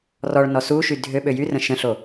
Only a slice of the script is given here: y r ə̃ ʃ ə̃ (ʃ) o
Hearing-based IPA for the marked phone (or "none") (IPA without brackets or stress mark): ɬ